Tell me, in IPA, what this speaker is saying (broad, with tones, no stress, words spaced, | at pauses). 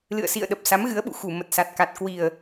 lɨ̰˧˨ə̯sḭ˧˨ə̯ ɗə˨˩p̚ sa˨˦mɣɨ˨˦ə̯ɓṵ˧˨ xu˧˩ mə˨˩t̚sa˨˩t̚ka˨˩t̚ kwi˨˩ə̯